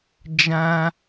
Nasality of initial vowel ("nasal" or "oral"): nasal